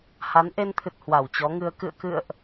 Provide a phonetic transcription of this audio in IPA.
h a˨˦ n ʔ e˧ n t̪ʰ ɨ˨˩ t̚ h w a˧˩ w t͡ɕ ɔ˨˦ ŋ ɨ˧ ə̯ k ɨ̰˧˨ ə̯ k ɨ̰˧˨ ə̯ ʔ

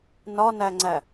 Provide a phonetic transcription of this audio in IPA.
n ɒ n æ ŋ͡ǀ æ

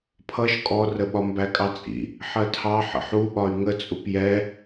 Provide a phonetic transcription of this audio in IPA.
pʰ ʌ ʃ kʼ ɔ r ə ɓ ɒ m b æ kʼ ɑ t͡sʼ ḭ | ħ ɜ tʰ ɑ ħ ə̰ ħ u ɓ ɒ y̯ ŋ ə t͡sʼ u p j ɛ

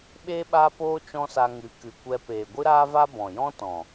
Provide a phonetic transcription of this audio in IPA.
ɓ eː˦ ɓ aː˦ p oː˦ t͡ʃ ɔ̃˦ s a˧ ŋ ɨ˨˦ k ɨ˨ kʷ ɛ˧ p eː˨ ɡʷ ɨ˦ ɾ aː˦ v a˦ b ɔ̃˨ j ɔ̃˦ t ɔ̃˨

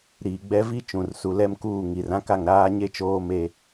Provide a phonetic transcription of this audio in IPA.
ɾ iː˨ ɡ͡b ɛ˦ v i˦ t͡ʃ ũ˨ r s u˨ l ɛ˦ m k uː˦˨ ŋ i˨ r ã˦ k a˦˨ ŋ ɾ aː˦ ɲ e˦ t͡ʃ oː˦ m e˦

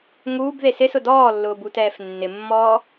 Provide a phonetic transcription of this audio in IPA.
ŋ uː b ð e s ɪ s ʊ d ɔː lː ʊː b u t ɛː f nː ɪ mː ɔː

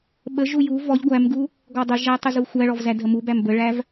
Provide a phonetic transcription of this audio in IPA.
ɓ ə ʒ u j u v ɔ ʎ ɡʷ æ m ɡ u | ɡ ɔ dˤ ə ʒ æ tˤ ə z u xʷ æ ɭ ɔ v z æ d ɦ ə m u b æ m b ə ɭ æ v

